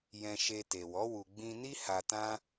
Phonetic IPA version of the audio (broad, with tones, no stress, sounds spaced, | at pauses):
j ɛ̃˧ ʃ e˧ t e˨ w ɔ˨˦ w u˧ ɡ͡b ĩ˧ n i˦ h a˧ t ã˦